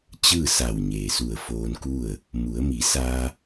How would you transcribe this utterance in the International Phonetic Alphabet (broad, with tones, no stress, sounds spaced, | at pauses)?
t͡ɕ ɯː˥˨ s a˧˩ w ɲ eː˩ s u˧˩ ə̯ f oː˧ n k u˥˨ ə̯ | m u˩˧ ə̯ m i˩˧ s aː˧